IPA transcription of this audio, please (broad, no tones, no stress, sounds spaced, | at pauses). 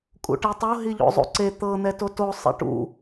kʼ ṵ ʈ i tˤ o ɦ i ʎ o̰ zˤ ṵ ǀ e t̪ ɤ n̪ ɛ t o t o sˤ ḛ ʈ ṵ